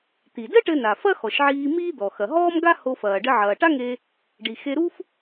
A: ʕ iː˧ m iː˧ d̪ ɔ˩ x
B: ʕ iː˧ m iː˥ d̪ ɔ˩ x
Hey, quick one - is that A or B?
B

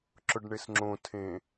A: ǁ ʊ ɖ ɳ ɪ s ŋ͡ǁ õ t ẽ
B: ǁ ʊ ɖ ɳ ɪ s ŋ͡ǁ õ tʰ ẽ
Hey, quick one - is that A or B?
B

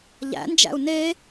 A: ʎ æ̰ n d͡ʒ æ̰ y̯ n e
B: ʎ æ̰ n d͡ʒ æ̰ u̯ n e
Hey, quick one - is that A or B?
B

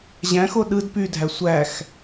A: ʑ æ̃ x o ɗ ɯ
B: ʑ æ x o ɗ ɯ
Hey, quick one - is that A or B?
A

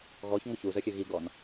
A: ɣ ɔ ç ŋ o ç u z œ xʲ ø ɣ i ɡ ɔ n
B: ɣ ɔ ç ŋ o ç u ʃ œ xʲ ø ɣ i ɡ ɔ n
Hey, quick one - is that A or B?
A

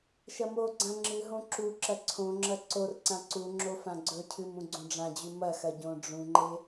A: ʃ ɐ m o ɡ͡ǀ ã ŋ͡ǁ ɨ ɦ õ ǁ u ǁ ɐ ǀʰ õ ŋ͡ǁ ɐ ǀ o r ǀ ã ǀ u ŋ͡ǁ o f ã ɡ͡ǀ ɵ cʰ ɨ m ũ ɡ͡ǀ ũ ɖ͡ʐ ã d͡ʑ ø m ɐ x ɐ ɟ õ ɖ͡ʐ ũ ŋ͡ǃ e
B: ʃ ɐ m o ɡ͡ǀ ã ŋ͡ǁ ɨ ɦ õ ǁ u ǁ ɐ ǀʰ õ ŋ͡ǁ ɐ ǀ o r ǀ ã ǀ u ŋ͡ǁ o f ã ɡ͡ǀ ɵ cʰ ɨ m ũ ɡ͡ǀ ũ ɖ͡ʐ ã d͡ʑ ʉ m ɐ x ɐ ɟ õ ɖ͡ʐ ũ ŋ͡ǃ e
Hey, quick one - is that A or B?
B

